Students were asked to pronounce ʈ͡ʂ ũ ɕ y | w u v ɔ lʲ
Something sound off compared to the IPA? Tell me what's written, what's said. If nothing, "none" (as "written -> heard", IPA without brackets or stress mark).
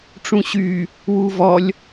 none